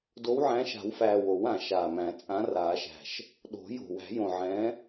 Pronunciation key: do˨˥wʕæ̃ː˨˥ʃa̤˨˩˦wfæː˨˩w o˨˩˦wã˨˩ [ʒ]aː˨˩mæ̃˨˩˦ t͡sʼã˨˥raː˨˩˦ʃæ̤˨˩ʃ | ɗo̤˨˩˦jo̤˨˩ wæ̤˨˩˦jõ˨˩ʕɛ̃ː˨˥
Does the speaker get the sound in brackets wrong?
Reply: yes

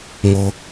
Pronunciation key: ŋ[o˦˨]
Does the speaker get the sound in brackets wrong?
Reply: yes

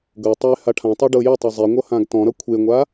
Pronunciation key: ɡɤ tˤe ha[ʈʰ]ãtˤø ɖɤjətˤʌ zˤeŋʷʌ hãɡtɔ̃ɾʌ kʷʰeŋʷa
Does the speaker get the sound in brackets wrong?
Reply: no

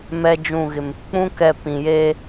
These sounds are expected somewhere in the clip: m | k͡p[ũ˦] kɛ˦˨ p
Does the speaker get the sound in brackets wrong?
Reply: no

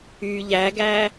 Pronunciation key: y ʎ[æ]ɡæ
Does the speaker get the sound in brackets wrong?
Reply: no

